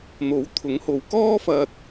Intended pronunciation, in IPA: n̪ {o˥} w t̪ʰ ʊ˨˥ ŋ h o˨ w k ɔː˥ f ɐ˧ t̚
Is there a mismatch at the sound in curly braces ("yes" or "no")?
yes